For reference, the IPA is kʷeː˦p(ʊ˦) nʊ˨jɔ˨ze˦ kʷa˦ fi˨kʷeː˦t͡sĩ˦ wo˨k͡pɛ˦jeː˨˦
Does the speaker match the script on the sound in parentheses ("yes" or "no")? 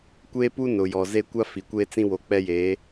no